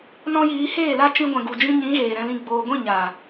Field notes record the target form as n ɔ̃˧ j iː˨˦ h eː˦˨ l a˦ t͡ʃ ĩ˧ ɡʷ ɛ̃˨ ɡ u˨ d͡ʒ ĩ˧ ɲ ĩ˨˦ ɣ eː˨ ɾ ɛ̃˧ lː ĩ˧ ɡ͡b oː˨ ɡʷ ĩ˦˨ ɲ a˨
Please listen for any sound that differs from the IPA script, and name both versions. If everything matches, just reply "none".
lː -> l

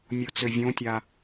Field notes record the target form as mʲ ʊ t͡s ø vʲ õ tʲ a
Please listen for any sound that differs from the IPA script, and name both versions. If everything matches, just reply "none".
none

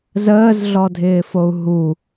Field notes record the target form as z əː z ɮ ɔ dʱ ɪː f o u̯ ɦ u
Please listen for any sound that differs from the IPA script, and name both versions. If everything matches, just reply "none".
none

